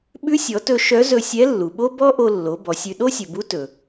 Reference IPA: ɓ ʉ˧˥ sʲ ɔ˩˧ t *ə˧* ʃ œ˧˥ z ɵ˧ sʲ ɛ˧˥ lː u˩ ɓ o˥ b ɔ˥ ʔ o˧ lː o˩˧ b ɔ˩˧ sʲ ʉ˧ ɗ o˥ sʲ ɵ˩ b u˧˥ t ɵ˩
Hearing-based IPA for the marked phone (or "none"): ɵ˧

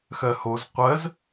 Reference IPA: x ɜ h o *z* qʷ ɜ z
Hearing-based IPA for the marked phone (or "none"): z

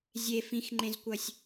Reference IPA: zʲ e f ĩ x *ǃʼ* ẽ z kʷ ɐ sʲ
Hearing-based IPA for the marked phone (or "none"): ŋ͡ǃ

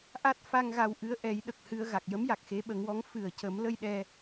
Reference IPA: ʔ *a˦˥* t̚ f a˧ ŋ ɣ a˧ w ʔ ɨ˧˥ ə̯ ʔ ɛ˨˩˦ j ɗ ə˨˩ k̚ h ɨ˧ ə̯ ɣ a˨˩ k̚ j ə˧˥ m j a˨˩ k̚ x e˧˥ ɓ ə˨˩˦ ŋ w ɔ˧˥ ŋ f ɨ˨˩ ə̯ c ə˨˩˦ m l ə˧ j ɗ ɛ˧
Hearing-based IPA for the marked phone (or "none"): a˦˥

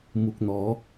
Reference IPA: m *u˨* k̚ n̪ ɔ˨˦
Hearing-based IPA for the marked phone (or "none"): u˨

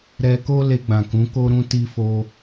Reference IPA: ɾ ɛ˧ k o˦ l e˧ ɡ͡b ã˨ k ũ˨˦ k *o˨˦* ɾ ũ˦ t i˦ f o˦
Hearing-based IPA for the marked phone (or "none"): o˦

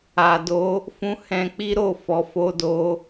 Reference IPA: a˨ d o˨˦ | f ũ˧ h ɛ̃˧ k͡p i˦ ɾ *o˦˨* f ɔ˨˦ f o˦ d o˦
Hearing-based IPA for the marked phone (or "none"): o˦˨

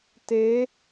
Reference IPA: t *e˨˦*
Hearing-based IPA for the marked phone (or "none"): e˨˦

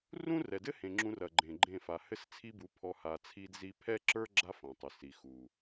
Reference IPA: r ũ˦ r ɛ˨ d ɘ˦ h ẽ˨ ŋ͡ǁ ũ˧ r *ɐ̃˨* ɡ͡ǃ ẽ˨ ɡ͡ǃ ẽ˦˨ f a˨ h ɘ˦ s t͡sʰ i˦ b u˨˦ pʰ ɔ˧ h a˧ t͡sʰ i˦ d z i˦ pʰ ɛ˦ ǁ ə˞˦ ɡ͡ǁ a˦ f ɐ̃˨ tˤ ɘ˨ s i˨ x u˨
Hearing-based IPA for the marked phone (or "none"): ɐ˨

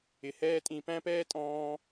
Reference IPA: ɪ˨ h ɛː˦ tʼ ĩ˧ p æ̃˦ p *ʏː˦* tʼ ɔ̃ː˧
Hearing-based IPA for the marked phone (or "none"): ɛː˦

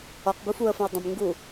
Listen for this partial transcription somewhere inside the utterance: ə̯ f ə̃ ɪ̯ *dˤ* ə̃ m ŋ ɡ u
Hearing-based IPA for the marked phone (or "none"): dˤ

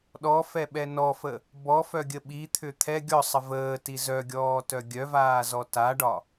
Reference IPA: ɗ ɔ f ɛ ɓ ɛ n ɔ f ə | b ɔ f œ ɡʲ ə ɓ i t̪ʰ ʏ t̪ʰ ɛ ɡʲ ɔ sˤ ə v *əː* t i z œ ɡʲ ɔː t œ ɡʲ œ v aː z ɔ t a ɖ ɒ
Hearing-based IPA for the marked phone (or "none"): əː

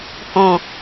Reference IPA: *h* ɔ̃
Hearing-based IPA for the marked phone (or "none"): h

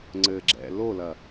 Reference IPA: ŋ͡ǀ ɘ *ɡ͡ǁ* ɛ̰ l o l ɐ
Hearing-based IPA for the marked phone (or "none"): ɡ͡ǁ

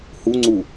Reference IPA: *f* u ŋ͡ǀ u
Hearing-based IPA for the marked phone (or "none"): h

